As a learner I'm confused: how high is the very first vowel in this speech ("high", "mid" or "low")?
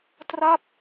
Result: low